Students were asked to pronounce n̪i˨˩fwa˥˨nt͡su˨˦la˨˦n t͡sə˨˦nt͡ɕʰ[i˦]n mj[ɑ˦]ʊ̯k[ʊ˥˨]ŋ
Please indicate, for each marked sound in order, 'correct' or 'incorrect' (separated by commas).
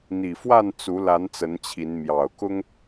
incorrect, incorrect, incorrect